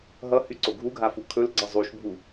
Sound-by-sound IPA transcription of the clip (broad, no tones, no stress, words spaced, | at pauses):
ɦʌhyǀo ɡʱuɡʱafu kʰɵlɡ͡ǀʌ zˤuʃbʱu